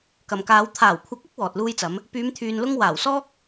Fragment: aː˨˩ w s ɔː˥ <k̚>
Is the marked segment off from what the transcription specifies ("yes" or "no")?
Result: no